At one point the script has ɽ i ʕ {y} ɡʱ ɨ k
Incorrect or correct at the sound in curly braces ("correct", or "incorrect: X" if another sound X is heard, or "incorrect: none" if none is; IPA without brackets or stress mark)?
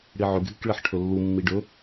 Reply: incorrect: ʏ